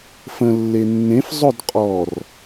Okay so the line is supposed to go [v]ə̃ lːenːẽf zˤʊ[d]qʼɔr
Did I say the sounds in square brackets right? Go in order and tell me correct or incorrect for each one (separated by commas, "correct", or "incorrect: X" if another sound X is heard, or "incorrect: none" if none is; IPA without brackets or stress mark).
incorrect: f, correct